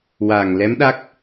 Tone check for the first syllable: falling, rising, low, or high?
low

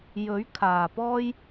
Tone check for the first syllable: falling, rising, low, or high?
rising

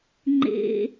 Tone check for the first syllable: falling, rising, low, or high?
low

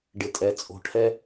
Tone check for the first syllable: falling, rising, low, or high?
low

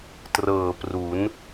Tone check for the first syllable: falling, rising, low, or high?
low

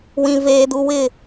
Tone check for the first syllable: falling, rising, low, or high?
high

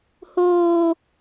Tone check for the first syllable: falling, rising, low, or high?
high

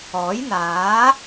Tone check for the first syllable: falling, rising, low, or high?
rising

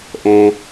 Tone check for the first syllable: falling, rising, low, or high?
high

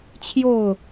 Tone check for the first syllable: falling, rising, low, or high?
falling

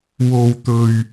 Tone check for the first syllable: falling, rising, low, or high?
low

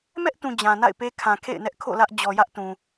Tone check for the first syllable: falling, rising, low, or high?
high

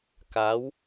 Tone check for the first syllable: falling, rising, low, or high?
rising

